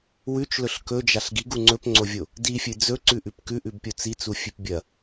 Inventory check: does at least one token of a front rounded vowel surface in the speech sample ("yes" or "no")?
no